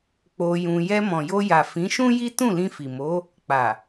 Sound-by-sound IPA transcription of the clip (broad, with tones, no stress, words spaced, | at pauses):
k͡po˧jũ˧ jɛ˧mɔ̃˨jo˧ja˨ fĩ˨˦ʃũ˦ ji˦ tũ˦˨lĩ˧fi˨mo˨˦ | k͡pa˨